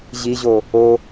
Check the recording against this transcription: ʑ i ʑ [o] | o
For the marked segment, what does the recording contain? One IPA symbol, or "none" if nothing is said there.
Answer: o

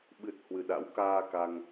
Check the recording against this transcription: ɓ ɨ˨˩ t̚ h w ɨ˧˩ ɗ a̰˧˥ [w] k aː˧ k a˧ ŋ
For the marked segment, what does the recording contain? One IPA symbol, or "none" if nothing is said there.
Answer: w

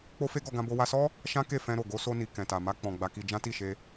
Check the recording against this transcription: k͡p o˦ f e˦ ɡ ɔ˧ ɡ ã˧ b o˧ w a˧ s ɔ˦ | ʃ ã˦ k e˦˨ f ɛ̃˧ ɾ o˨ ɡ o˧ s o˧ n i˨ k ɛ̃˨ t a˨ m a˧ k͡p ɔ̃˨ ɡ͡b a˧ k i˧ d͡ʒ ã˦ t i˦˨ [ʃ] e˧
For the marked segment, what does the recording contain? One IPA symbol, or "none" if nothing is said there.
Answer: ʃ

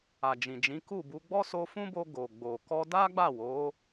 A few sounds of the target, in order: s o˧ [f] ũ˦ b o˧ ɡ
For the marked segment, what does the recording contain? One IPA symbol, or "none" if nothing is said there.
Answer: f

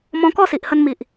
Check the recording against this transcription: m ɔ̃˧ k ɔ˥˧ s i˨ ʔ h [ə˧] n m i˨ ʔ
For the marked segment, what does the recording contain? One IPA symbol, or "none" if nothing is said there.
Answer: ə˧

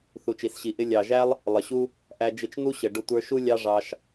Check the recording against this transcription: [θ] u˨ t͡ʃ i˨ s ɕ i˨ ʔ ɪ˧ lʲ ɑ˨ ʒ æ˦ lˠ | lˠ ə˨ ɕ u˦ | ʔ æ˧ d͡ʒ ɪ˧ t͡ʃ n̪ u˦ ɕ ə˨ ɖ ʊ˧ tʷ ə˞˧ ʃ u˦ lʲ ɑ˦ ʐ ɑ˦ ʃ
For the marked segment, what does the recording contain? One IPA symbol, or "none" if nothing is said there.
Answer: θ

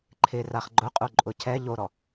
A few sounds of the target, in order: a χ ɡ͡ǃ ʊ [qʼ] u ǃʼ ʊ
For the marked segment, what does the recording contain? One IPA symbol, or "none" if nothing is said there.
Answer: qʼ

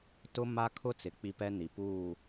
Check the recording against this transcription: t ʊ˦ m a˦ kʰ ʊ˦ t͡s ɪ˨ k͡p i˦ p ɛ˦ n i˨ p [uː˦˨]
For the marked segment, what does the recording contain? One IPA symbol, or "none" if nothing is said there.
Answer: uː˦˨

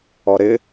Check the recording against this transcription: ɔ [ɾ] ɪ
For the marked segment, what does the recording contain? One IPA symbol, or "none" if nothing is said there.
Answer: ɾ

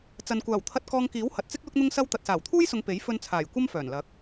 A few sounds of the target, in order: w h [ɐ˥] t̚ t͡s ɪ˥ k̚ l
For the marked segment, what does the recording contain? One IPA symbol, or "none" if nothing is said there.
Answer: ɐ˨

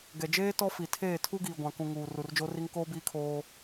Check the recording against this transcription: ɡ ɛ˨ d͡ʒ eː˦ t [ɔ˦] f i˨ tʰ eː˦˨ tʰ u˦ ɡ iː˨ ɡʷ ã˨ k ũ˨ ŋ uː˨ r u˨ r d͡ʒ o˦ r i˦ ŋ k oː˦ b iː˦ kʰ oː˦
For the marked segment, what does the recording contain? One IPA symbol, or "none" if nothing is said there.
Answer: ɔ˦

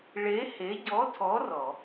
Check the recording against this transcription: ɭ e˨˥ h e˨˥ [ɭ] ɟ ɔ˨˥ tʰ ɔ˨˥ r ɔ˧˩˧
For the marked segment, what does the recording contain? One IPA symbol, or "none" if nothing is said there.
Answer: none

